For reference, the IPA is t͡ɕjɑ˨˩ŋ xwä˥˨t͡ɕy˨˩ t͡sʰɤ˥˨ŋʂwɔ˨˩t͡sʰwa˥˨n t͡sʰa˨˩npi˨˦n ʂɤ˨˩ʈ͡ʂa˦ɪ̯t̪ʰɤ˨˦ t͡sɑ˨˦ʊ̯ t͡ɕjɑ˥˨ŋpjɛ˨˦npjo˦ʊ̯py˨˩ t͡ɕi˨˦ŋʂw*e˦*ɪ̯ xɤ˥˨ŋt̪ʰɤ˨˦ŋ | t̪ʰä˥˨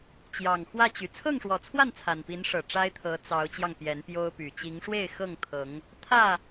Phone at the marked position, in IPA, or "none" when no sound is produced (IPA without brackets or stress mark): e˥˨